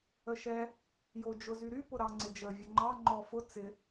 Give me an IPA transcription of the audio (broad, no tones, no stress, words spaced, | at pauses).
əʃɛ | jod͡ʒʊzyɾy pʊɾɑŋ͡ǀɪd͡ʒə vʲəŋ͡ǃɑ ŋ͡ǃɔfʊ t͡sɪ